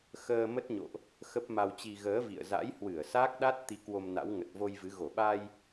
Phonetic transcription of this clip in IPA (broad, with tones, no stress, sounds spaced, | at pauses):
x əː˧ m ə˦˥ t̚ ɲ o̰˧˨ ʔ | x ə˦˥ p̚ m a˧ w t͡ɕ i˧ ɣ əː˨˦ v ḭ˧˨ ə̯ z a̰˧˥ j h w ɨ˧˩ ə̯ s aː˦˥ k̚ ɗ a˦˥ t̚ t̪ i˨˦ k w o˧ m n a̰˧˥ w ŋ ə˨˩ t̚ v o˧ j v ɨ˨˦ ɣ o˧˩ ɓ a˧ j